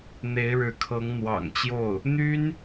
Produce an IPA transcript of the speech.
n̪ e˧˥ ɪ̯ ɻ ɻ̩˧˥ kʰ ɤ˧˥ ŋ n̪ w ɑ̰˨˩ ŋ t͡ɕ j o˥˩ ʊ̯ | n̪ y˥ n

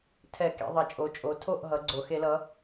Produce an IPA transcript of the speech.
tʰ ɛ˧˩˧ k ḛ˩˧ ðˤ ʌ˩˧ t͡ʃʼ o˩˧ t͡ʃʼ o˩˧ tʰ o˥˩ ʔ ɦ ʌ˩˧ ɡ͡ǀ o˩ x e˧˩˧ l ʌ˩˧

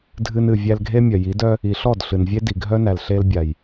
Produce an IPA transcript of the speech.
dʱ ɨ˧ n ɨ˨ vʲ æ˧ l ɡʱ e˦ mʲ œ˨ j i˨˦ d œ˦ | i˨ ɬ ɔ˦˨ d ɬ ɨ˨ n vʲ e˦ d i˨ ɡʱ œ˦ n æ˨ l ɬ e˧ l bʲ a˨ j

